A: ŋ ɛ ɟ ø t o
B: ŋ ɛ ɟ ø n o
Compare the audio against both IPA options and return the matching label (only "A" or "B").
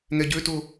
A